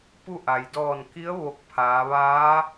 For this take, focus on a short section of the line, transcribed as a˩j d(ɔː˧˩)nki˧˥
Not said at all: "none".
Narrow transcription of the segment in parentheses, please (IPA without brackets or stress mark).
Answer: ɔː˧˩